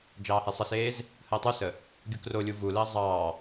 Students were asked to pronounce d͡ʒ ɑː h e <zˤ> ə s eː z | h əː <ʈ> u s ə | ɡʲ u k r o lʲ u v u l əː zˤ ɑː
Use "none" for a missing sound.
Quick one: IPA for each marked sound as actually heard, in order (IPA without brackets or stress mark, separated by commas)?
sˤ, tˤ